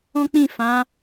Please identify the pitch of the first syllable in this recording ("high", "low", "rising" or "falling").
high